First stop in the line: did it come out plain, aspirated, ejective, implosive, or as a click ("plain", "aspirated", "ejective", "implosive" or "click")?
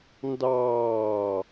plain